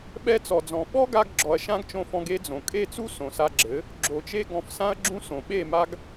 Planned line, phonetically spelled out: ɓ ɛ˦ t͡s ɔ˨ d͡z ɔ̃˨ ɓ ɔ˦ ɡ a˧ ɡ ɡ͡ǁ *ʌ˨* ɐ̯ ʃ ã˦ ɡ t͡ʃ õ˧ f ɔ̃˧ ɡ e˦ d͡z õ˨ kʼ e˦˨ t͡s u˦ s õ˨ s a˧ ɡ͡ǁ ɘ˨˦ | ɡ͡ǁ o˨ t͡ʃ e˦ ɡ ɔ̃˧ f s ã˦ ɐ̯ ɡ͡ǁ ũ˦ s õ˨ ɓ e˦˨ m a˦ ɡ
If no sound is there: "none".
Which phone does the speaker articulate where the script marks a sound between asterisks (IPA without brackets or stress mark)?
ɔ˨